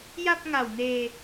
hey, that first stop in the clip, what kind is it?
plain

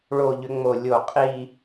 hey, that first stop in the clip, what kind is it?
ejective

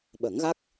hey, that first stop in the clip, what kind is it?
implosive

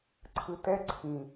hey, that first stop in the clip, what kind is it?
click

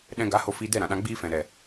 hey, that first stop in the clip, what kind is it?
implosive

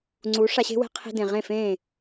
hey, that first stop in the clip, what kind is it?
click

